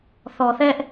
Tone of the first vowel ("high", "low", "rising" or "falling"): low